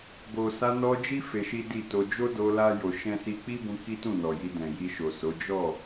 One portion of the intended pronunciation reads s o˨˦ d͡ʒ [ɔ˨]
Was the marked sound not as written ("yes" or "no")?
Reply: yes